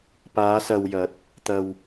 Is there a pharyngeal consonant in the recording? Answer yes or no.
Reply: no